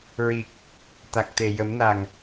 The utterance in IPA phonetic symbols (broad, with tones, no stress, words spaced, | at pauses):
ɹi˨˩k̚ | t̪a˨˩k̚t̪e˨˩ jə˨˩˦mna˨˩ŋ